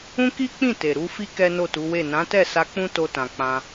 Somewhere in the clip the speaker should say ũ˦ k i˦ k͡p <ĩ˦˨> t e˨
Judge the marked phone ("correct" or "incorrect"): correct